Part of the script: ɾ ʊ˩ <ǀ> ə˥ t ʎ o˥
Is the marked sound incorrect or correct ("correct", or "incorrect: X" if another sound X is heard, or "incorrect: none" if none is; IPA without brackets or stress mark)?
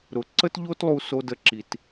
correct